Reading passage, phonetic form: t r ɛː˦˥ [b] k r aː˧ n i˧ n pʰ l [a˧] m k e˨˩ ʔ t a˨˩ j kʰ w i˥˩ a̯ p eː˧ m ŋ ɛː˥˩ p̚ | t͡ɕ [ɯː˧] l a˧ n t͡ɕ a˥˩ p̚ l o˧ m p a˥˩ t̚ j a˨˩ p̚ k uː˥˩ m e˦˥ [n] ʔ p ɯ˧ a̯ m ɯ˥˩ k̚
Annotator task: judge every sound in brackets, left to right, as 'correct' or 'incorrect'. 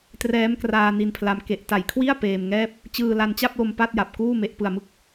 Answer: incorrect: m, correct, correct, incorrect: none

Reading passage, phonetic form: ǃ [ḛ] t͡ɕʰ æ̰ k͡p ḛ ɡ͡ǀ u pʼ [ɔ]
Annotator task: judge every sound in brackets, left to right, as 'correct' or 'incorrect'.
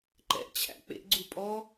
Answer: incorrect: ɛ̰, correct

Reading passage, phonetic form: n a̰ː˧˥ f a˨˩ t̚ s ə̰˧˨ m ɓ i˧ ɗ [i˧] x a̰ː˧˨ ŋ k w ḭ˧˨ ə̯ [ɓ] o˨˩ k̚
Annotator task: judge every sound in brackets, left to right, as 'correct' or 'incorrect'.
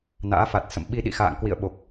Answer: incorrect: ḭ˧˨, correct

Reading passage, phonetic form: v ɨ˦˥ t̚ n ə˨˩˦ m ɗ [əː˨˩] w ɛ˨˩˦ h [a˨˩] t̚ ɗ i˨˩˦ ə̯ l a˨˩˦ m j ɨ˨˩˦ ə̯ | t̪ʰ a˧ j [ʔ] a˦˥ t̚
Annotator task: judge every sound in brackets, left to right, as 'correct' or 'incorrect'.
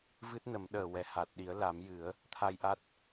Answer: correct, correct, correct

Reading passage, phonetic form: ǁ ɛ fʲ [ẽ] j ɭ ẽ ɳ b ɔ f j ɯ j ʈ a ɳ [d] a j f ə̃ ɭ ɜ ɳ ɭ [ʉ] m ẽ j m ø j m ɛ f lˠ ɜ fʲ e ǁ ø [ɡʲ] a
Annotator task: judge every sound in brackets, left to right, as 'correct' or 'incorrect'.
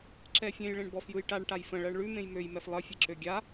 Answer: correct, incorrect: ʈ, correct, correct

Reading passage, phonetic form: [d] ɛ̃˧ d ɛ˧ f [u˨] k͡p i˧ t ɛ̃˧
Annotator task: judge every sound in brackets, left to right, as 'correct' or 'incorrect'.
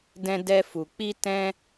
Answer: correct, correct

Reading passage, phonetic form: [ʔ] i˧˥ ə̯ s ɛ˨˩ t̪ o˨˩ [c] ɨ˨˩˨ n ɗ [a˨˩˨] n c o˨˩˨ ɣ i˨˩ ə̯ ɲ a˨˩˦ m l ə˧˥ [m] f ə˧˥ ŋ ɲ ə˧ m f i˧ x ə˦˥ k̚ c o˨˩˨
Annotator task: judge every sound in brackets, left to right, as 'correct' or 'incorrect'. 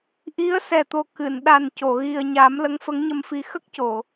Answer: correct, incorrect: k, incorrect: a˨˩, incorrect: ŋ

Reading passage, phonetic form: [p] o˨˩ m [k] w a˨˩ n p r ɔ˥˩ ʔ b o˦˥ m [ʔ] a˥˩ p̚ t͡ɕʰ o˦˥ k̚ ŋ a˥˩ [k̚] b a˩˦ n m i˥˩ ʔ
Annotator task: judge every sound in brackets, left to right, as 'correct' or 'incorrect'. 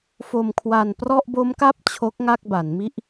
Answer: incorrect: f, incorrect: kʰ, incorrect: k, correct

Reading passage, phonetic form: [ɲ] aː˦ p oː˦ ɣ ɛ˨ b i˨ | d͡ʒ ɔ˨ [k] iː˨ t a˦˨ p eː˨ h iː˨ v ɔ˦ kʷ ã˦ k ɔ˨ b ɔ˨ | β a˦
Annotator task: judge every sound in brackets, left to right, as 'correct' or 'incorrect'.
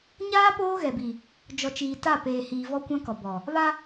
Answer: correct, incorrect: t͡ʃ

